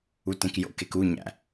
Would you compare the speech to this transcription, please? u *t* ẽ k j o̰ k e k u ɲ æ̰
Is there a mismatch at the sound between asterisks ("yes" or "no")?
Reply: no